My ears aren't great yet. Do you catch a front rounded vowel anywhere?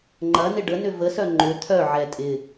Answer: yes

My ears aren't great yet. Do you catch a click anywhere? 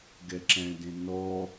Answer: yes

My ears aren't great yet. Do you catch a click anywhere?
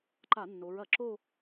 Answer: yes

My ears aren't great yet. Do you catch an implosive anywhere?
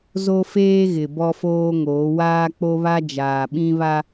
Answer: yes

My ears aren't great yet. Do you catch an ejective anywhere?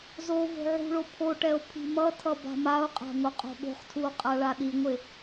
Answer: yes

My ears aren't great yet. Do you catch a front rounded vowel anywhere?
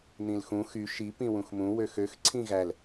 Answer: yes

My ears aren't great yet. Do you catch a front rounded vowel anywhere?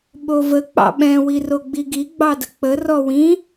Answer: no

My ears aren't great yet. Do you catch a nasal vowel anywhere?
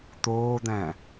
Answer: yes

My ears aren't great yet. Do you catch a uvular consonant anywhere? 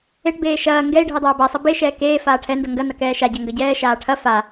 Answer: no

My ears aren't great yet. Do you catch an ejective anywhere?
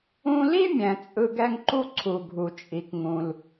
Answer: yes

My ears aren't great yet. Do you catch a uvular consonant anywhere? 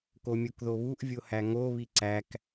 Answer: no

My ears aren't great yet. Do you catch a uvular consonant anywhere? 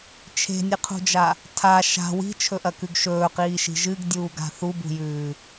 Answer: yes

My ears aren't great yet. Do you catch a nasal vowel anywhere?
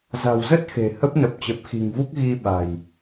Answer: no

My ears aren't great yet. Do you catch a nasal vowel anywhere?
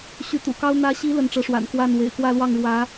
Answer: no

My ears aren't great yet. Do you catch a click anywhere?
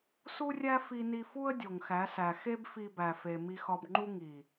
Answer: yes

